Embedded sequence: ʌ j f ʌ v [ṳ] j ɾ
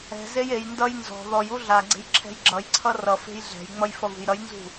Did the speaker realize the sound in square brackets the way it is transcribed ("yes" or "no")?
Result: yes